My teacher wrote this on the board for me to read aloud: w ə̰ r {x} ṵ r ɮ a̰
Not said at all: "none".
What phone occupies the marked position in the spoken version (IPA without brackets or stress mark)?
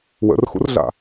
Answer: x